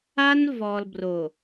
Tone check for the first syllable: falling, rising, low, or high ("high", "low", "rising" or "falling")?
high